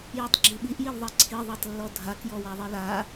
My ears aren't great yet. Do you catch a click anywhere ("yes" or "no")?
yes